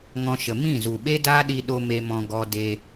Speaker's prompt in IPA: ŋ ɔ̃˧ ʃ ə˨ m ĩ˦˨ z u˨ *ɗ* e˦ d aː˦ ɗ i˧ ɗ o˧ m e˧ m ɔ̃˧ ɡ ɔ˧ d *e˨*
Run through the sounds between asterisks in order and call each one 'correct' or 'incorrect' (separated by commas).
incorrect, incorrect